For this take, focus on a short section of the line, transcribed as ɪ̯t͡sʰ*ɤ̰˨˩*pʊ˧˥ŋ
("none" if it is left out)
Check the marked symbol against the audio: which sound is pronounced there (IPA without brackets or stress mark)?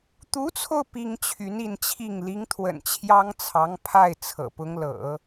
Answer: ɤ̰˨˩